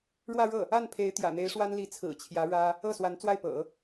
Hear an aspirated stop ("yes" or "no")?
yes